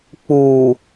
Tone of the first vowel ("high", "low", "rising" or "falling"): low